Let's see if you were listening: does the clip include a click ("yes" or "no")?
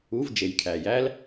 no